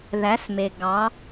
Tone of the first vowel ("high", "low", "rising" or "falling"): rising